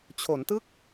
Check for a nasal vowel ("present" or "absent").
absent